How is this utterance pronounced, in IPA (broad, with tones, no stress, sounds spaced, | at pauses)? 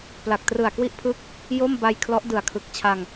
p l a˨˩ k̚ t r ɯ˨˩ a̯ k w i˥˩ ʔ pʰ ɯ˥˩ k̚ | j o˥˩ m b a˧ j kʰ l ɔ˦˥ ʔ d ɯ˨˩ a̯ kʰ ɯ˨˩ k̚ t͡ɕʰ a˧ ŋ